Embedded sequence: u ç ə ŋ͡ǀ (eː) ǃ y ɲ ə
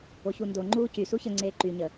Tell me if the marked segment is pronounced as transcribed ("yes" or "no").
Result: yes